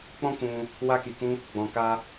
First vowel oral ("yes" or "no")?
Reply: no